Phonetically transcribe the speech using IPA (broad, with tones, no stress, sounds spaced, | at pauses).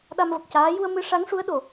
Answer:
ɗ a˧ m v ə˨˩ k̚ c aː˧˥ j u˧ ə̯ m ɨ˧˥ ʂ a˧˥ ŋ ʂ u˧˥ ə̯ ɗ o˨˩